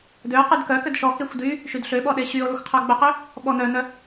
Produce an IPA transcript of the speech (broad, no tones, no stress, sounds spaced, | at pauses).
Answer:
d ø o̯ q y d k œ k ø d ʃ ɔ k e xʷ d y | ʃ y d ɬ ø ɓ ɔ ɗ e ɕ y o̯ l ɔ xʷ qʰ œ ɡ͡b œ q ø | ɓ ɔ n œ n œ